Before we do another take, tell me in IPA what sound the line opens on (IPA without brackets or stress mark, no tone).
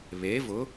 β